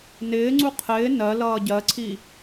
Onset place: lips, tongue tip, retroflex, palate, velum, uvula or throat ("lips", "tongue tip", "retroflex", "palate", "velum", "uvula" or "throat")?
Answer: tongue tip